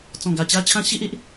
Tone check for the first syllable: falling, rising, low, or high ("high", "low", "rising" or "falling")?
low